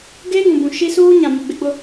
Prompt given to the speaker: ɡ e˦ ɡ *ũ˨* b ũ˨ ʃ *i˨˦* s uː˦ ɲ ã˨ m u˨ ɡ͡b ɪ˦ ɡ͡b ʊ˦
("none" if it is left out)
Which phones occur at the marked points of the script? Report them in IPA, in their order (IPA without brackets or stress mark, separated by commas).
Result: ũ˨, i˦